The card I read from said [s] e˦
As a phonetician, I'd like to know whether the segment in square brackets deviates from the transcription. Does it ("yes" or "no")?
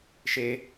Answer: yes